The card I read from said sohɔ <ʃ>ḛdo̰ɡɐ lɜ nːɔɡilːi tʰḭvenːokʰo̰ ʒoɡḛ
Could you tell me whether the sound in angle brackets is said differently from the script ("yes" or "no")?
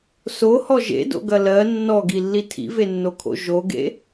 yes